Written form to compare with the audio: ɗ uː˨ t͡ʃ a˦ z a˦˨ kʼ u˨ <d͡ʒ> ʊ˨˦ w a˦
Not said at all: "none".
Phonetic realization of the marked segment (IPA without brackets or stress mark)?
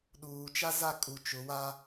t͡ʃ